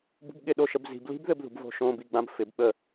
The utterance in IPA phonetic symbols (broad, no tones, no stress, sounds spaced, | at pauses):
b ṳ b ɠ ɪ ɗ o ʃ ə b z i̤ b l i̤ b ð ɘ b ð ṳ b v o̤ ʃ õ b i ɡ͡b ã b f ɪ b ɓ ə